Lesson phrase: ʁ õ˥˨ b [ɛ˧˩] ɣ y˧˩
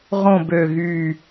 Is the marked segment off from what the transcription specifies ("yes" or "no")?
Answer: yes